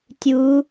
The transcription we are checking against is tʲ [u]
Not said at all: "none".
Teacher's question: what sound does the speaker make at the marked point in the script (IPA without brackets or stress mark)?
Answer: u